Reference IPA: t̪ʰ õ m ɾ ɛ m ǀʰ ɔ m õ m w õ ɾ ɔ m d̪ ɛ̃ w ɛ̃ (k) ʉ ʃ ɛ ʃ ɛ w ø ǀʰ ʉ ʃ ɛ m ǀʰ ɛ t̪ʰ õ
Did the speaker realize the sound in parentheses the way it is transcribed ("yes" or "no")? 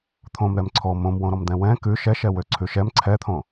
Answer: yes